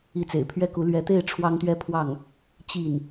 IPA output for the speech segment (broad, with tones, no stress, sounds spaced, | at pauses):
i˧˥ t͡s ḛ˨˩ ɪ̯ pʰ ɥ ɛ˥˩ k u˧˥ l ɥ ɛ˧˥ t̪ e˥˩ ɪ̯ ʈ͡ʂʰ w ɑ˥ ŋ t̪ ɥ ɛ˥˧ pʰ w ɑ˥˩ ŋ | t͡ɕ i˥˩ n